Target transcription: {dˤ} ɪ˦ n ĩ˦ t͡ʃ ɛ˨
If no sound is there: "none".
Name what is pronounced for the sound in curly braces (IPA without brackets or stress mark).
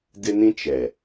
d